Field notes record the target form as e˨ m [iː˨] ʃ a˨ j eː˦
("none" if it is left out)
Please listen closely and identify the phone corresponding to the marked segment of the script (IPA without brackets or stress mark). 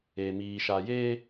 iː˨